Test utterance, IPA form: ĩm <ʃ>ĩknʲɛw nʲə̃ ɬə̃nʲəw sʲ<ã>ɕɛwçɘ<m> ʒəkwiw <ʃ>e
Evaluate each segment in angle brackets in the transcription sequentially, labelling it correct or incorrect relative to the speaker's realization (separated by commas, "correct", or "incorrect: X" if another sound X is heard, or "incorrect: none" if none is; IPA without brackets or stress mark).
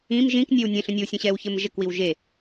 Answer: incorrect: ʒ, incorrect: ə̃, correct, incorrect: ʒ